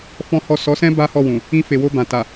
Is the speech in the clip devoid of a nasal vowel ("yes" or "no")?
no